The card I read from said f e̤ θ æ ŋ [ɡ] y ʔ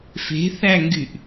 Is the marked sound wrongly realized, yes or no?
no